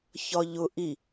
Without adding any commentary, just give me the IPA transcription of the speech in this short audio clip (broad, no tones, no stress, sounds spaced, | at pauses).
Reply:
ç ɒ ʎ ʊ ʔ i